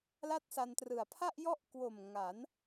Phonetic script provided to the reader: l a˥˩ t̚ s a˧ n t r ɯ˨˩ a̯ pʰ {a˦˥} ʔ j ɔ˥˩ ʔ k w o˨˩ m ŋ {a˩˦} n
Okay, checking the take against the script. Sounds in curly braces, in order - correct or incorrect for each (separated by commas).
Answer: incorrect, correct